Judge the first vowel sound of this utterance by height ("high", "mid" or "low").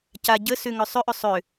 low